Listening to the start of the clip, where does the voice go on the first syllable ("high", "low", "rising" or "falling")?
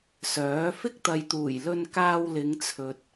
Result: rising